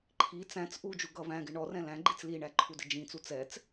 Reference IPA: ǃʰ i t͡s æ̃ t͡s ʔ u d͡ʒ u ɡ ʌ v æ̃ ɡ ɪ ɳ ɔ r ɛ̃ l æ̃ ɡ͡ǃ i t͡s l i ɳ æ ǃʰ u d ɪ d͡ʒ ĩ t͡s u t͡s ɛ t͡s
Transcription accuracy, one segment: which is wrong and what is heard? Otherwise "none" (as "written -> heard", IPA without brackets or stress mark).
none